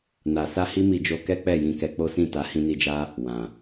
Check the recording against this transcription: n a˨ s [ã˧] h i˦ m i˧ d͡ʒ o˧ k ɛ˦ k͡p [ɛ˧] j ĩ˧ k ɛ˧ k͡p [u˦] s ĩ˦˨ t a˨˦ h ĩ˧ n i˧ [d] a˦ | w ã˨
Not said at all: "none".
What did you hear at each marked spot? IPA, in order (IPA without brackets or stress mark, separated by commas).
a˧, ɛ˦˨, o˦, d͡ʒ